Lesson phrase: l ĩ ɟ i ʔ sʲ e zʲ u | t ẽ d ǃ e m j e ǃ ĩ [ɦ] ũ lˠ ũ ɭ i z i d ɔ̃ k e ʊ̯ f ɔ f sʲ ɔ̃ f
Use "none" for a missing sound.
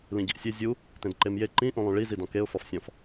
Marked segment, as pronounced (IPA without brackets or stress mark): ʔ